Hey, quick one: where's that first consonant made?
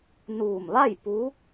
tongue tip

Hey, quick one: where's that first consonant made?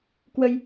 velum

